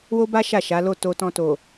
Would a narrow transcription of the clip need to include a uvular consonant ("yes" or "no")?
no